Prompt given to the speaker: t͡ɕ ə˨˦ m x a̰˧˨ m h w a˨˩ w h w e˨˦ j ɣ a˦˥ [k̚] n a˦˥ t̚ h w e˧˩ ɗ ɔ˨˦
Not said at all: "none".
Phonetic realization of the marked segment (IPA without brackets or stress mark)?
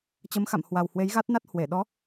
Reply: t̚